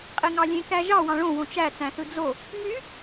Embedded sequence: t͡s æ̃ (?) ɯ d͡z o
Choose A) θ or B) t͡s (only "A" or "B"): A